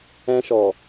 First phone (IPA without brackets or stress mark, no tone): ɛ̃